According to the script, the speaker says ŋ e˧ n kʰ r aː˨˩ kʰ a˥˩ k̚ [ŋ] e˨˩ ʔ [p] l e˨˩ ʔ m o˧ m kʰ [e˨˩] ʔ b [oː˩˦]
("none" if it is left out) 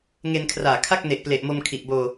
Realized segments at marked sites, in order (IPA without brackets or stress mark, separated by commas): n, p, i˨˩, oː˧